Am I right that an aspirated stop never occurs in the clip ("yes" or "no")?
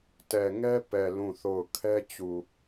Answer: no